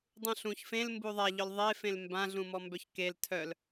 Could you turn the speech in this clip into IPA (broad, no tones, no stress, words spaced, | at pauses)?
dˤũɬũç fẽl mbuðˤaʎœl ðˤefẽl mbã ɮũmɔmbœçkel tʰœl